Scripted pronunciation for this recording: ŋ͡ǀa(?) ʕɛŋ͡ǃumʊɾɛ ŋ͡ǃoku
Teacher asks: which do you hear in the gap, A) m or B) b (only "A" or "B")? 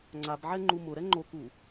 B